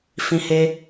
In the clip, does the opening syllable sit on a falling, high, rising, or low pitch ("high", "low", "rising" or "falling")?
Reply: high